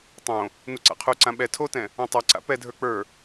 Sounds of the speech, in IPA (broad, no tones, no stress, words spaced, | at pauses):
tˤõ | nuǀa̰qʰuǀã ɓɛ tʰotɛ̃ | õtˤɛǀa̰ pɛdʱə˞ k͡pə˞